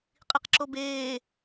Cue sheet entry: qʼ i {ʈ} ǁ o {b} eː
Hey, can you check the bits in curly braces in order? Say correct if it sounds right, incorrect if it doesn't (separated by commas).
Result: incorrect, correct